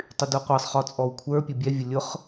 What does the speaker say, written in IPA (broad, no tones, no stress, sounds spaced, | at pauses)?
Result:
tˤ y d o qʷ ɤ sˤ χ ɔ t͡sʼ ɔ w kʷʰ ə˞ pʲ ʊ bʲ ɛ vʲ ʊ lʲ ʊ χ